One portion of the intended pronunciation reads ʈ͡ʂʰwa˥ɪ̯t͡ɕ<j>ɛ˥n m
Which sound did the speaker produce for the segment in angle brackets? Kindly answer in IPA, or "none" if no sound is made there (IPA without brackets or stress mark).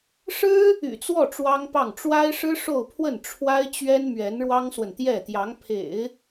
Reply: ɥ